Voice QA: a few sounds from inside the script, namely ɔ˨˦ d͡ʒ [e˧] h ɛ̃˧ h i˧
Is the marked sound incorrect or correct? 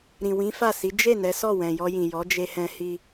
correct